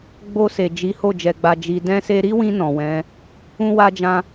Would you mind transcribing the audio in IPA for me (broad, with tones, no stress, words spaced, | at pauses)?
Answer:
ɡ͡bo˧se˨ d͡ʒi˨˦ho˦˨ d͡ʒɛ˨ɡ͡ba˨ d͡ʒi˨ dɛ̃˧se˧ɾi˦wĩ˧ nɔ̃˨wɛ̃˨˦ | ũ˦wa˦d͡ʒã˦